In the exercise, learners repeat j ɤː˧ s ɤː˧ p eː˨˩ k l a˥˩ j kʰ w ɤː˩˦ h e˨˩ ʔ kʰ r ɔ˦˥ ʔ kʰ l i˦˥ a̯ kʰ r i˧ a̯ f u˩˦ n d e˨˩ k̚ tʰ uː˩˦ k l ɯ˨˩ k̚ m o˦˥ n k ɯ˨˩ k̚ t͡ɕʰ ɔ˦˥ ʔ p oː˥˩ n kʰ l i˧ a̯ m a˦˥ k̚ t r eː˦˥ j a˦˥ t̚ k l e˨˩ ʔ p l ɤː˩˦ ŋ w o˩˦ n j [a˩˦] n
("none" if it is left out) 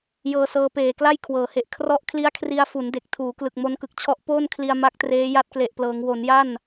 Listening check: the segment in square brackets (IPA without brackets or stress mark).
a˥˩